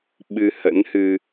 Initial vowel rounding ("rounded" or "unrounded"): unrounded